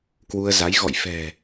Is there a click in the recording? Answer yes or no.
no